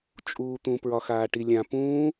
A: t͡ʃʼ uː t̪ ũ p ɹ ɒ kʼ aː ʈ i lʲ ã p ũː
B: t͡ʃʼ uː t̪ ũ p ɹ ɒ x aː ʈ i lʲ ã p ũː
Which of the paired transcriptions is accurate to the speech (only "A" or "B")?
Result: B